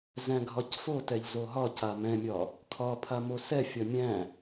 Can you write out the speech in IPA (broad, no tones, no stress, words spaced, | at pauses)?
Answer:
zæ̃ɡʱɒcfotɛʎ zoɦɒca mɛ̃mʲɒ | kʰɒpʰa mosɛfʲɒ mʲæ̃